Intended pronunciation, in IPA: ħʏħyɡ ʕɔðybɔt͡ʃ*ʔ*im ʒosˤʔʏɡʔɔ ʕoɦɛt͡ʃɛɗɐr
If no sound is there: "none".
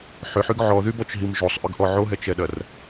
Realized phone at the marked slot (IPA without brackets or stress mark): ɦ